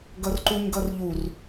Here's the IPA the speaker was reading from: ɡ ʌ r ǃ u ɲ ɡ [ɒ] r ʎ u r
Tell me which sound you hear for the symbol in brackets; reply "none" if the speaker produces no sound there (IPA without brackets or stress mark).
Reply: ʌ